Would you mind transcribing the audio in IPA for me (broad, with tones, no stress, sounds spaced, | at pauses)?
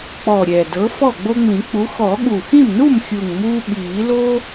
k͡p ɔ˨˩ ɾʲ ɛː˨˩ d ɤ˨˥ f ɔ˥˩ ɡ͡b o˦ ŋ͡m ĩ˨˩˦ k͡p u˨˥ x ɔ˨˩˦ ɠ u˨˩ x ĩ˥˩ m n u˥˩ m xʲ u˨˩ ŋ m uː˦ ɓ iː˨˩˦ l o˦